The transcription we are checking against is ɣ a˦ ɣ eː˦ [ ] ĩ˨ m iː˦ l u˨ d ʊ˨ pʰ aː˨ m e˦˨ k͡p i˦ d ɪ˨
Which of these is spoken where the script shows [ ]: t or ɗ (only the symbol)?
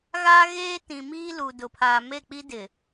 t